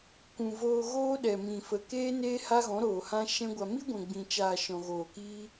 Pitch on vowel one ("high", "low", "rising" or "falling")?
low